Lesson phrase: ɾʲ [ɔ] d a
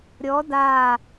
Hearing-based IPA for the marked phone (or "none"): ɔ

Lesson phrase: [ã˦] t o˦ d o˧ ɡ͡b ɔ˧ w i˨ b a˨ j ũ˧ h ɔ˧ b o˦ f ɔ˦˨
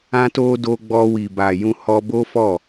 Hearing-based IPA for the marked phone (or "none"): ã˦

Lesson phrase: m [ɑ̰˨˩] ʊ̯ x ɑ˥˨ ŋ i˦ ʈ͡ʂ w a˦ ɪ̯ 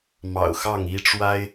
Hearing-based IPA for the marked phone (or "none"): ɑ̰˨˩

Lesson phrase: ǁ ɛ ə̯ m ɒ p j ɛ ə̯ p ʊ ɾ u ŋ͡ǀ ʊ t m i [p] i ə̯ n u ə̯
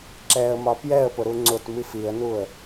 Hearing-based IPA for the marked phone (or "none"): f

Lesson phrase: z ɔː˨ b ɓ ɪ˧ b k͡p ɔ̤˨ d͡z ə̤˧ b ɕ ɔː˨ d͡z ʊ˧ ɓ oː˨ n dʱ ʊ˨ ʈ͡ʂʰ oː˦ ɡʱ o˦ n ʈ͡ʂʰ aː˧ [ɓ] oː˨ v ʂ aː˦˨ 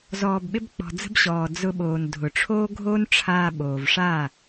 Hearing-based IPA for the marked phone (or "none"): ɓ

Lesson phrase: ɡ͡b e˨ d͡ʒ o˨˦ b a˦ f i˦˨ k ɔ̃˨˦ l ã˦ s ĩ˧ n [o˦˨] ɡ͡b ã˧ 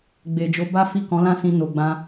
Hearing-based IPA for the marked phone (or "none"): o˨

